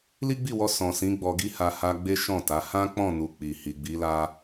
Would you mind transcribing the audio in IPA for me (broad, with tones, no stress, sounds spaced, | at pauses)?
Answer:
l i˦ ɡ͡b i˦˨ w ɔ˧ s ɔ̃˨ s ĩ˨˦ ɡ͡b ɔ˧ ɡ i˦ h a˧ h a˧ ɡ͡b e˦ ʃ ɔ̃˦˨ t a˨˦ h ã˦ k͡p ɔ̃˦˨ n u˨ k͡p i˨ h i˨ ɡ͡b i˨˦ l a˦